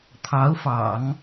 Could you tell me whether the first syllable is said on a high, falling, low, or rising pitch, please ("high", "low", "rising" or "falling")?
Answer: rising